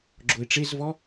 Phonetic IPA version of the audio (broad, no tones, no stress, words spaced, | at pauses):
ɡ͡ǁoɪ̯ʈ͡ʂezvɔ